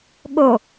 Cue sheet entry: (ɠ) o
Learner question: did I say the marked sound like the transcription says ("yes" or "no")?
yes